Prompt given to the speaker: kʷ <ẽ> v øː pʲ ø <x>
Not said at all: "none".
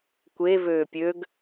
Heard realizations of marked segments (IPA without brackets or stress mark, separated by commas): e, ɡ